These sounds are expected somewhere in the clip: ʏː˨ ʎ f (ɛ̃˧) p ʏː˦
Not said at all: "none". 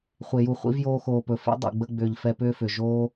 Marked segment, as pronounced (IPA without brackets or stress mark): ɛ˧